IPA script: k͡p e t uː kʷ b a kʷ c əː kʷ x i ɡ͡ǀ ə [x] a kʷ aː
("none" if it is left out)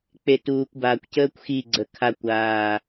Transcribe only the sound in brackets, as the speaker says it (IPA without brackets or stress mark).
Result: kʰ